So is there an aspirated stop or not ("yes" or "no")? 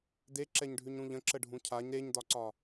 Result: yes